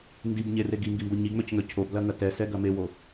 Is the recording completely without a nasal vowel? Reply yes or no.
yes